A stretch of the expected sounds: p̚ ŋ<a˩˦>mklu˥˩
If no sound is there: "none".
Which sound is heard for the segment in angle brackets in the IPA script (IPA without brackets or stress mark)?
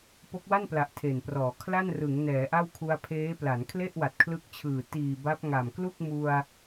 a˨˩